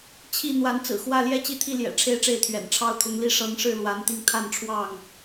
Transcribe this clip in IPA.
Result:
t͡ɕʰ i˥˨ n̪ w a˨˦ n t͡s ɹ̩˨˩ x w ä˥˨ l j ɛ˥˨ t͡ɕ i˥˨ t̪ʰ i˥˨ l j ɛ̰˨˩ ʈ͡ʂʰ e˥˨ ɪ̯ ʈ͡ʂ e˥˨ ɪ̯ t̪ʰ ɥ ɛ̰˨˩ n ʈ͡ʂʰ ɑ˦ ʊ̯ t̪ʰ ʊ˨˦ ŋ l i˥˨ ʂ ɤ˨˦ ŋ ʂ ɻ̩˥˨ l w a˨˦ n t̪ i˧ ŋ t̪ʰ a˥˨ n ʈ͡ʂʰ w ɑ˥˨ ŋ

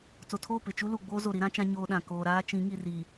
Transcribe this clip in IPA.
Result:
t͡s o˨ tʰ oː˦˨ p ɪ˨ t͡ʃ u˦ l u˨ ɡ͡b oː˦ z o˨ ɾ i˦ ɾ ã˦ t͡ʃ ã˦ ɲ oː˦ ɗ ã˨ k oː˨ ɾ aː˦ t͡ʃ ĩ˨˦ ŋ i˨ r i˨

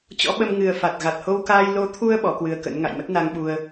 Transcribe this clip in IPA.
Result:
t͡ɕ ɔ̰˧˥ ɓ ə˧ m ŋ ɨ˨˩ ə̯ f a˨˩ t̚ ɣ a˨˩ t̚ h o˧ w k aː˧ j l o˨˦ t̪ʰ u˧ ə̯ ɓ ɔ˨˦ k w ɨ˧ ə̯ k ə̰˧˥ n ŋ a̰˧˨ j m ə˦˥ t̚ n a˧ ŋ ɓ u˧ ə̯

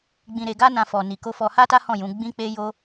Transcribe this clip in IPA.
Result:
ɡ͡b ĩ˧ ɾ e˧ ɡ a˦ n ã˧ f ɔ˨ n i˨ k o˧ f ɔ˧ h a˦ t a˦ h ɔ̃˦˨ j ũ˨˦ ɡ͡b ĩ˦ k͡p e˦ j o˦

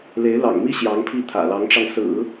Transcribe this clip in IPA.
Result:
l e˧˥ ɪ̯ l ɑ̰˨˩ ŋ m i˥ ɕ j ɑ˧˥ ŋ pʰ i˥˩ t̪ʰ ä̰˨˩ l ɑ˧˥ ŋ ʈ͡ʂ ɑ˧ ŋ s ɹ̩˨˩˦

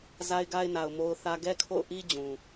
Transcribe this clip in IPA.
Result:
z a˦ ɪ̯ ɡ a˦ ɪ̯ n a˨ ʊ̯ m o˦ ʊ̯ θ ä˦ ɡ ɛ˦ kʰ o̰˦˨ ʊ̯ ʔ i˦ d͡ʑ ũ˨

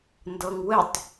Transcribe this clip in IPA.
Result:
n d ɤ ŋ w ɘ tˤ

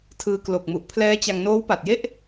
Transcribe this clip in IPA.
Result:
tʰ ɯː˧ k l o˨˩ k̚ m u˨˩ ʔ pʰ l ɛː˦˥ t͡ɕ a˧ ŋ n oː˦˥ w p a˨˩ t̚ j e˥˩ ʔ

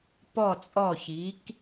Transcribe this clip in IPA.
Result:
p ɔ˧˩ t͡sʼ ɔ˧˩ ç i˩˧ k

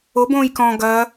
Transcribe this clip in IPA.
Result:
o b õː j k ɔ̃ ɡ ɐ

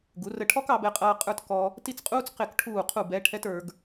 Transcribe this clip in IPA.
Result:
ɡ u˩˧ r ə˧˩ ʈʰ ɔ˥ k ɑ˩˧ b ɛ˧ qʼ ʌː˧ qʼ ə˞˥ t k ɔ˧ | t i˥˧ t͡s qʼ uː˥ t͡s q ɪ˧˩ k ʈʰ uː˧˩ qʰ u˧˩ b ɛ˥ ʈʰ ɛ˥ t ə˞˩˧ ɡ

